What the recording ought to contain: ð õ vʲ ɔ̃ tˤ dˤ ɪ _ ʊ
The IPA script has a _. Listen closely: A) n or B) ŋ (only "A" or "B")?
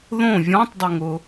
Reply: B